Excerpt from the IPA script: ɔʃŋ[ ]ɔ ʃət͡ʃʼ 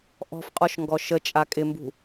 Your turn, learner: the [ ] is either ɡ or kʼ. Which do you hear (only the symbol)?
ɡ